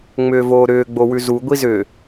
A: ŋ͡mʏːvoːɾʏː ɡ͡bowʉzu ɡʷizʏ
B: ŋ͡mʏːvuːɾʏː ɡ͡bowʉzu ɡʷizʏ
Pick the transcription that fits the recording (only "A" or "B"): A